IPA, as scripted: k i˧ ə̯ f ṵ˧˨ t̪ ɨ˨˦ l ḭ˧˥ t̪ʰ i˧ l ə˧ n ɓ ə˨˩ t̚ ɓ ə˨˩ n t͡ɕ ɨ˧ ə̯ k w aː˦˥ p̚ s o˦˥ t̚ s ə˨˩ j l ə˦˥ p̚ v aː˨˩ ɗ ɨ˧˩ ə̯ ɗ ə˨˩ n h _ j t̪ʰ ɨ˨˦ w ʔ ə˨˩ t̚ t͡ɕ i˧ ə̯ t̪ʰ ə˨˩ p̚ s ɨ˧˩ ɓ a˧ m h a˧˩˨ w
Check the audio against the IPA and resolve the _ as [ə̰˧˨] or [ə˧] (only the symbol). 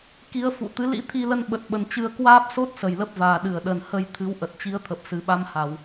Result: ə˧